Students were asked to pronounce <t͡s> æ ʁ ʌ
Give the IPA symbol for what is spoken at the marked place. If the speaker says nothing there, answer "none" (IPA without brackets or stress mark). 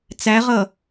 t͡s